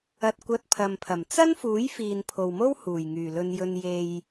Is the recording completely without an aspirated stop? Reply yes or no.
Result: no